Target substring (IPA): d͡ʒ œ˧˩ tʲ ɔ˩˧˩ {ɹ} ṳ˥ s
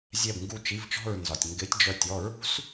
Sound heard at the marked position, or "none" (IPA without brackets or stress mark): ɹ